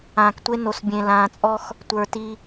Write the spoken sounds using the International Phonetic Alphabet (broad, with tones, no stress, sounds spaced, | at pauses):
ãː˨ k tʷ e˦ n o˨ s bʲ ẽ˨ l ãː˨ t͡sʼ ɔ˦ x | tʷ ə˞˨ t i˦